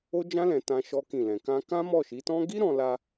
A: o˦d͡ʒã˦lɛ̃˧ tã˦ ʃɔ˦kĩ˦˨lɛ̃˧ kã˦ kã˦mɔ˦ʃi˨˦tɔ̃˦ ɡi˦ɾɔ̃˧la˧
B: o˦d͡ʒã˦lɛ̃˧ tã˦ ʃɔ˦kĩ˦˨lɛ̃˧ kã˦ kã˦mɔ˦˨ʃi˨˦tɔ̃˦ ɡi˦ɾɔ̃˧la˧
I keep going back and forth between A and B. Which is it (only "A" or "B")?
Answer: B